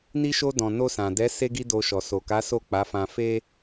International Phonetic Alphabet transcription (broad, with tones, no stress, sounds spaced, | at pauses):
n i˧ ʃ o˧ d ɔ̃˨ n o˧ s ã˨ d ɛ˨˦ s e˦ ɡ i˦ d o˧ ʃ ɔ˨ s o˨ k a˨˦ s o˦˨ k͡p a˨˦ f ã˧ f e˦